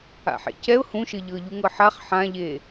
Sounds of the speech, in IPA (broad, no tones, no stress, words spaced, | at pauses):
a̰ħḛcɛʊ̯ hũʃɘ ʎɤʎuŋɤħaχ ħãʎe